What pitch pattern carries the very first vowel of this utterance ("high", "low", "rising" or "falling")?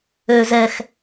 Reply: low